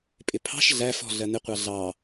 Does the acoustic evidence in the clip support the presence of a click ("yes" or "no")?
no